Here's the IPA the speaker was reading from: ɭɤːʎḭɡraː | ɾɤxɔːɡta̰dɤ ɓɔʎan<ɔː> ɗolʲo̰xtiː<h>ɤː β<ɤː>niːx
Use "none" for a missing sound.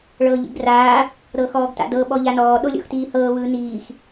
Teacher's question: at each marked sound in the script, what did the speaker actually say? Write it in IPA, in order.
ɔː, h, ɯː

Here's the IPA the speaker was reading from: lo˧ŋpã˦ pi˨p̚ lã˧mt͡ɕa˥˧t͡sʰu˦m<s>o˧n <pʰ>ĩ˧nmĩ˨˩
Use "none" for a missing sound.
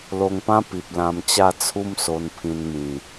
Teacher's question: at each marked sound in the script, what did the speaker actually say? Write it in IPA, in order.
s, pʰ

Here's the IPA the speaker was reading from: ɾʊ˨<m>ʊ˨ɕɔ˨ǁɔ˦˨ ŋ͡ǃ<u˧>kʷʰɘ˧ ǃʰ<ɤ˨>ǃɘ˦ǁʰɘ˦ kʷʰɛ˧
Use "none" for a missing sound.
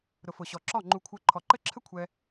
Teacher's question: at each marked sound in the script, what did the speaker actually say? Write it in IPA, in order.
f, u˧, ɔ˨

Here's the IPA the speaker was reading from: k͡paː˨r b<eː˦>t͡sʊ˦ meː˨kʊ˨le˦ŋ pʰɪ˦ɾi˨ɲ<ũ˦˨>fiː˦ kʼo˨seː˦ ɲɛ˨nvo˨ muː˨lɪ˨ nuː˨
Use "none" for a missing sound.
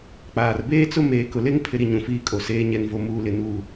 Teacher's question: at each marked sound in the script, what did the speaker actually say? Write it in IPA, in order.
eː˦, ũ˨

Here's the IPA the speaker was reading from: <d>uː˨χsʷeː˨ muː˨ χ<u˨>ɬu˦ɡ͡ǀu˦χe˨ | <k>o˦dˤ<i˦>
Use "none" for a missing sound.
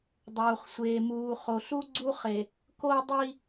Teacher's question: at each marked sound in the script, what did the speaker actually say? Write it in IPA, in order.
dˤ, o˨, k, i˦

